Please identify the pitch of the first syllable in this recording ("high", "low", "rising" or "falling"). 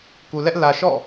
low